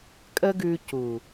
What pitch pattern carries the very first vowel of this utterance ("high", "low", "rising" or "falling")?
high